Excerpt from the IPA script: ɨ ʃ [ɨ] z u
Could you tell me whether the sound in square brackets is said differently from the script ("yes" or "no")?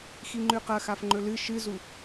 no